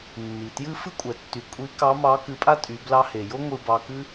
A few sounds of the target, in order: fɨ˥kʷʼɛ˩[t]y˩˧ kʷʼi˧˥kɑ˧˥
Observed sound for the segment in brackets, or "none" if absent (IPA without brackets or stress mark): tː